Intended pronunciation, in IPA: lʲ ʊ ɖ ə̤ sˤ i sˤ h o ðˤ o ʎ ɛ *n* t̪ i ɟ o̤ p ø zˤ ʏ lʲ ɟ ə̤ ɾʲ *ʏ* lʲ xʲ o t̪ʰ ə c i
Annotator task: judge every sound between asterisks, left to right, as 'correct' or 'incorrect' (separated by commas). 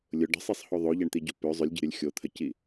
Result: incorrect, incorrect